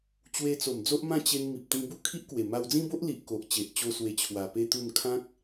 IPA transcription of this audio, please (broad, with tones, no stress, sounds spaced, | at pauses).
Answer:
t͡ɕ w e˧ t͡s o˨˩ m d͡z o˦ ʔ m ã˥˧ t͡ɕ e˧ n m i˨ p̚ t̪ ĩ˧ b u˥˧ kʰ i˦ ʔ k w e˨˩ m a˧ w d͡z ĩ˦ b o˦ ʔ l i˨ ʔ k o˨ ʔ t͡ɕ e˨ ʔ t͡ɕ o˧ s w e˧ t͡ɕʰ w a˨˩ p e˦ t̪ u˥˧ n kʰ ã˦ k̚